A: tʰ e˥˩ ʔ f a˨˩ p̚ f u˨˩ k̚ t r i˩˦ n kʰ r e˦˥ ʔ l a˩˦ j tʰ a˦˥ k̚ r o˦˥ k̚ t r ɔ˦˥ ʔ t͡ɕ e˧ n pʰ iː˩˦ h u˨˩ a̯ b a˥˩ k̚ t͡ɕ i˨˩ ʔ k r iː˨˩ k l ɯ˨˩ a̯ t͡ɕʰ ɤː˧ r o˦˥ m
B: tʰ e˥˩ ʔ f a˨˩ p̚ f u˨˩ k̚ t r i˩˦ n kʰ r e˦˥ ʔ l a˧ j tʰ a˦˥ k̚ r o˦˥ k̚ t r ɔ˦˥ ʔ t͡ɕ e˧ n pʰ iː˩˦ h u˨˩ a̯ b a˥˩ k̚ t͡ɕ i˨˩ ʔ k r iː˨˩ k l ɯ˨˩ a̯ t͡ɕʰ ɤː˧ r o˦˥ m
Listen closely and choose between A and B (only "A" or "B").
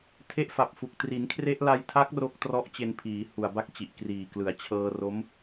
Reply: B